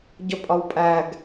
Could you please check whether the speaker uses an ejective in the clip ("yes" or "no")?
yes